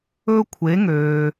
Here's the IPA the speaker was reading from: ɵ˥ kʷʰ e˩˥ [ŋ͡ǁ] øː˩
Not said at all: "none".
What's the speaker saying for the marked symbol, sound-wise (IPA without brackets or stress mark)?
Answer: ŋ